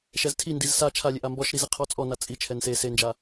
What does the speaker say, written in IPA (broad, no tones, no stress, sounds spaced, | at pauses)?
ʃ ɛ z tʰ i n d i z s a t͡ʃʰ a lʲ e ʔ a m b ɔ ʃ ɾ i z i qʰ ɔ t͡sʼ ɔ n a t͡sʼ i t͡ʃʰ ɛ n s e s e n d͡ʒ a